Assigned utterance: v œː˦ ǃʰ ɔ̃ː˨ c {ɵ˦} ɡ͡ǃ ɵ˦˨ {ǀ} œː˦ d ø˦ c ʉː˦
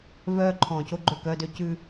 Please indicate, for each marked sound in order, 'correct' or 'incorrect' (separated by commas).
incorrect, incorrect